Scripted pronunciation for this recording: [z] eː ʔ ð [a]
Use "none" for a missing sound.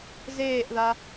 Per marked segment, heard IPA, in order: z, a

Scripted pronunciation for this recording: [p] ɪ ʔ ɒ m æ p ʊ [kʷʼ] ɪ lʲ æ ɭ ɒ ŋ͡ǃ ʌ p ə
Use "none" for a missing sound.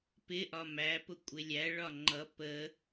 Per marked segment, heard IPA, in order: p, kʷʼ

